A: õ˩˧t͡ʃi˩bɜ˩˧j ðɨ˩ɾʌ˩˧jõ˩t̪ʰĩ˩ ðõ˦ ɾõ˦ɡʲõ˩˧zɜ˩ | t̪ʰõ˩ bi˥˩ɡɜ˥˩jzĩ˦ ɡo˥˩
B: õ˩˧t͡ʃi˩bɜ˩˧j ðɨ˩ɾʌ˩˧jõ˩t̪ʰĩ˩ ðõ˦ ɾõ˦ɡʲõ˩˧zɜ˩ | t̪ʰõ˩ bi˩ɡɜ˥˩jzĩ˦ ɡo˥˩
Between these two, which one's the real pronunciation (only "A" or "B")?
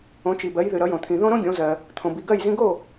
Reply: B